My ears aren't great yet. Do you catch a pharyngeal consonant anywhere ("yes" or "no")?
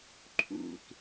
no